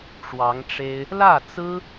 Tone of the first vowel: rising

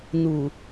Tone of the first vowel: low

